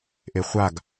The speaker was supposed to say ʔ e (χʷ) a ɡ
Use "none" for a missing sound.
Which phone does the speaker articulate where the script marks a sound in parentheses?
χʷ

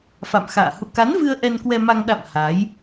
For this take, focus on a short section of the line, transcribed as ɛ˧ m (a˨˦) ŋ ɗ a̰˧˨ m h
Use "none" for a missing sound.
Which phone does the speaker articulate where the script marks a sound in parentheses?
a˧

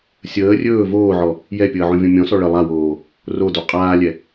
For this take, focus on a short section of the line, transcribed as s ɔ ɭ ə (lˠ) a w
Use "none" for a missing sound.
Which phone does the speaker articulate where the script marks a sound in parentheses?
lˠ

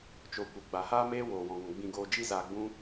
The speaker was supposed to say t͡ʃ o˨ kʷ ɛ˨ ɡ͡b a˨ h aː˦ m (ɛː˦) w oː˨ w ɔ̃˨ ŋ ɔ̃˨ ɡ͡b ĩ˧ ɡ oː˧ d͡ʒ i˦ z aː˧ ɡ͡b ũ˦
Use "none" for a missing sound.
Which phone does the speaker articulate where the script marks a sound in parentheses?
eː˦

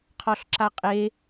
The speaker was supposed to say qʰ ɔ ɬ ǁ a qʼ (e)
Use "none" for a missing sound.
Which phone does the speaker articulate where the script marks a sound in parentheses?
e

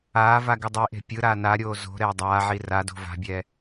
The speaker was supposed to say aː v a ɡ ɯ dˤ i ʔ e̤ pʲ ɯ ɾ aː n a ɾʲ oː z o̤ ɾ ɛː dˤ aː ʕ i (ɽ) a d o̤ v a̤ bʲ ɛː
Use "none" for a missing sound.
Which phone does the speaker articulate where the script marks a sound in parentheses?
r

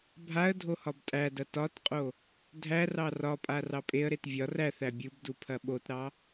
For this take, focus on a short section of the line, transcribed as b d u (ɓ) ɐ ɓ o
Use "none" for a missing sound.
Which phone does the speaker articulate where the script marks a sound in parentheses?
pʰ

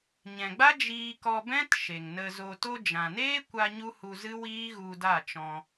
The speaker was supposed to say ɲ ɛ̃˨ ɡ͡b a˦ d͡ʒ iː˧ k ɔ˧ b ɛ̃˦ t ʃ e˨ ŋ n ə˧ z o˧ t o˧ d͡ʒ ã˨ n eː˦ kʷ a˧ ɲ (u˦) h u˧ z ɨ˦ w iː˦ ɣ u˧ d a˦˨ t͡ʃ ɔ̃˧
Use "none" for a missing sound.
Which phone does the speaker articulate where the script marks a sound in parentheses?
u˦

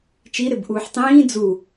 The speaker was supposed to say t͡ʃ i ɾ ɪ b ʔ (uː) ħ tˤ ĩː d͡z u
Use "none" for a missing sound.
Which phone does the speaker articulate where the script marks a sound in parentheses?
uː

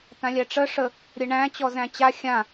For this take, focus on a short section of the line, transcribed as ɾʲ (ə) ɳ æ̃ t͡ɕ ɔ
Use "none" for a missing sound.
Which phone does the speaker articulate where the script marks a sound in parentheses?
ə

